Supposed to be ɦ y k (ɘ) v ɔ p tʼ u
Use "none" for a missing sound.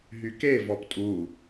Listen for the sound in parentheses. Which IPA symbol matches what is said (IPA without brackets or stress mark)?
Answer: e